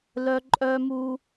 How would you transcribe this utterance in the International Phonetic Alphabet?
lœ˦ǃʼœ˦mu˦

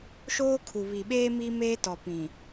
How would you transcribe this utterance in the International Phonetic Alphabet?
ʃoː˦kʰu˨ βi˨ɓeː˦ miː˦meː˦tɔ˨ pĩ˨

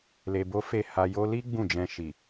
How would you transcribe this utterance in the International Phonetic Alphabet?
le˧bo˦ fe˦˨ ha˧ jo˧li˦ ɡ͡bũ˦˨d͡ʒɛ̃˧ ʃi˨

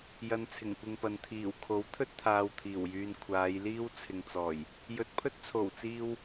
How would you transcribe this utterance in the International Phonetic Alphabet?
jɐ˧nt͡sʰɪ˨˩ŋkʷɪ˧ŋpɐ˨n t̪ʰiː˨˩w kʰo˨˥wt̪ʰɵ˥t̚ t̪ʰaː˧wt̪ʰiː˨˩wjyː˧n kʷʰaː˨˧jliː˥wt͡sʰɪ˨ŋt͡sɔː˨˩j | jɵ˨t̚pʰɵ˥t̚t͡sʰo˨˩wt͡siː˧w

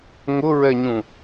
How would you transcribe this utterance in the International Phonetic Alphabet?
ŋʊɹɛɲũ

